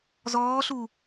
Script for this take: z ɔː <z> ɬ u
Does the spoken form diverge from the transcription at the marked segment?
yes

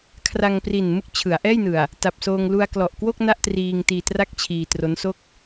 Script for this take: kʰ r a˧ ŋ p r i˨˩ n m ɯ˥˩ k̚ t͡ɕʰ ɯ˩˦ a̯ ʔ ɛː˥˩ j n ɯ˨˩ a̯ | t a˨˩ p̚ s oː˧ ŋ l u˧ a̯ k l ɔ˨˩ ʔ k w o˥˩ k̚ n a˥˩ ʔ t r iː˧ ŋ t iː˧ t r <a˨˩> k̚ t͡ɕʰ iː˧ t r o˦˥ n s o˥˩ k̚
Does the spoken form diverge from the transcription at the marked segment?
yes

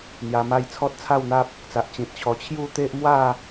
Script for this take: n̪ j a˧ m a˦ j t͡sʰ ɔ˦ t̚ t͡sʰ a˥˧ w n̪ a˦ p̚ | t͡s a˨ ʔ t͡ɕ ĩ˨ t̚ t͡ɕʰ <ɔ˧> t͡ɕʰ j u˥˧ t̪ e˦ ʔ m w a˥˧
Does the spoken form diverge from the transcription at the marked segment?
no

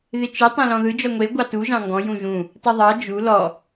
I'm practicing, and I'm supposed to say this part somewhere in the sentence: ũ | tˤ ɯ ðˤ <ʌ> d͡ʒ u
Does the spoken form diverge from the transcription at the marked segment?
yes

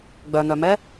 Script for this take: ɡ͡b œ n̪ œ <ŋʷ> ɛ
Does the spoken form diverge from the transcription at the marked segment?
yes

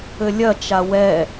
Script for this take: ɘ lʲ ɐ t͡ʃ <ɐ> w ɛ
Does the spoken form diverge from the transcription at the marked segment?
yes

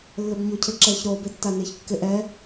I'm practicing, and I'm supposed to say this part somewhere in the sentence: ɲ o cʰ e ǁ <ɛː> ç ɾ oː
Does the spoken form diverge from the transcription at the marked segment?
no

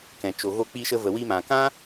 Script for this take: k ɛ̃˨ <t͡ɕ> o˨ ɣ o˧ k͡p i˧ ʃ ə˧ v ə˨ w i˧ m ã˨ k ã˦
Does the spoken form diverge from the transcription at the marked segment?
yes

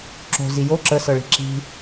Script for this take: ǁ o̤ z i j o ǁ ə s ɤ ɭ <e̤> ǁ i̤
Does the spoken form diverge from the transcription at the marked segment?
yes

